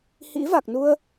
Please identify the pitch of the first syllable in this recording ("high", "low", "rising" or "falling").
rising